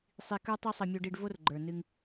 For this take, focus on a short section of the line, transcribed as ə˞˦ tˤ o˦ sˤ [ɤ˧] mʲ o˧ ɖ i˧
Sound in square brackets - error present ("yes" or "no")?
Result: no